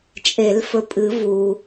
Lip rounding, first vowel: unrounded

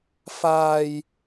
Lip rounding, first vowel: unrounded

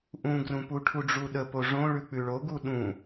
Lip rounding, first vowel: rounded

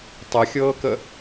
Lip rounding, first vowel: unrounded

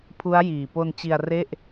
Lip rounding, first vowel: rounded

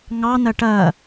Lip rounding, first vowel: unrounded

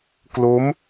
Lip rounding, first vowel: rounded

